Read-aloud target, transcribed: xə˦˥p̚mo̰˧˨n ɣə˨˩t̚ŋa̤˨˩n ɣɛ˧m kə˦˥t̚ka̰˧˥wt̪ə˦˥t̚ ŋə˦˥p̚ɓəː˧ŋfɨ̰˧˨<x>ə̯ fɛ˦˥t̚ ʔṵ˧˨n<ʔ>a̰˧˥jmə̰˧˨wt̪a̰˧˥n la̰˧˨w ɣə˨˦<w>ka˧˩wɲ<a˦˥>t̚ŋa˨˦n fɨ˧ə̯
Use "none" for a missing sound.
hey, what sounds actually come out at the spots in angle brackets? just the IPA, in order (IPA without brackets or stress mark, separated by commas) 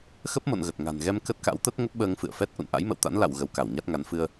none, ʔ, w, a˦˥